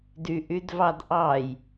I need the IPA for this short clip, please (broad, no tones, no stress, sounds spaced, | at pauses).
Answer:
d y ʔ y d v ɑ d ʔ ɑ j